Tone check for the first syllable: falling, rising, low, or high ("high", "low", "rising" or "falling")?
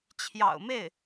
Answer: low